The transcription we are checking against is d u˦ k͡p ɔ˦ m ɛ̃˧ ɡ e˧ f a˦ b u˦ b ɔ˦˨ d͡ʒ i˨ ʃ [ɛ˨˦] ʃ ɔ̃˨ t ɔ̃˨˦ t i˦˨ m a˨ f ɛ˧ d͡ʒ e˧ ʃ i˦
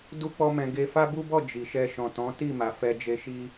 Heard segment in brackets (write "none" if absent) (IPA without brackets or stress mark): ɛ˧